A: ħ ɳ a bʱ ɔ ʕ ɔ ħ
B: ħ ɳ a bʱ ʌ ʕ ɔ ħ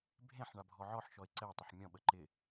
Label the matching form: A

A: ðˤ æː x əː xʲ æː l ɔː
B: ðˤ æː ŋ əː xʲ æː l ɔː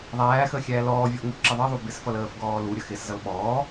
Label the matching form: A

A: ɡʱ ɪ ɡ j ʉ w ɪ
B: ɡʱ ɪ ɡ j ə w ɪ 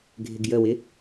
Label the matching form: B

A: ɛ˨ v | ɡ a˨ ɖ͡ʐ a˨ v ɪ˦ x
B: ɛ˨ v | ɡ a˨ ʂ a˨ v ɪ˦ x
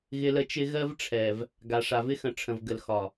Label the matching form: B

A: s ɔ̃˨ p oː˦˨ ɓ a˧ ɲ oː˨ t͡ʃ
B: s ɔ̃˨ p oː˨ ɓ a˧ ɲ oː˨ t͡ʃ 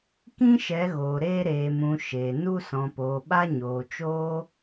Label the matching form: B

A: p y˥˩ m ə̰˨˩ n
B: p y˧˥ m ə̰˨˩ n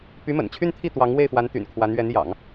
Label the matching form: B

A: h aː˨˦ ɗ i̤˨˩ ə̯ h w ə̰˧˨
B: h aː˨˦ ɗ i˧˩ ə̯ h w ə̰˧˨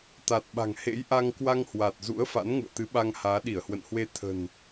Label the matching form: B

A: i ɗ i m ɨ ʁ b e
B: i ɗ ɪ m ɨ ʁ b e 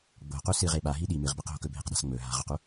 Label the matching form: A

